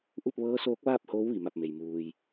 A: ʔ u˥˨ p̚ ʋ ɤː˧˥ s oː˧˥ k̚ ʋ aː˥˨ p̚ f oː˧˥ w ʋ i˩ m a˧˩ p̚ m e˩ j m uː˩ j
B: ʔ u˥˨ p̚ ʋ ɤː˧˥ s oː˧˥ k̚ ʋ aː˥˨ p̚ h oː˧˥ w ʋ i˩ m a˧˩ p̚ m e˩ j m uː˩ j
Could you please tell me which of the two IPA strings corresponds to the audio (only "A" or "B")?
B